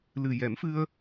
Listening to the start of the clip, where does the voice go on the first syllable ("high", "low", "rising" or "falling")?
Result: low